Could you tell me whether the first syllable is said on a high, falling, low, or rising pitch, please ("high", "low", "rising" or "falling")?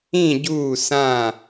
falling